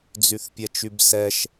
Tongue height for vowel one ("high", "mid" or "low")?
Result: high